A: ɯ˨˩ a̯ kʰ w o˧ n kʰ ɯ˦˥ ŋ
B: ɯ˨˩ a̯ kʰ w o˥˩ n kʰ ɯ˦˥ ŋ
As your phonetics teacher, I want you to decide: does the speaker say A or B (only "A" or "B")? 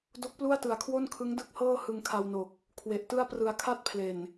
B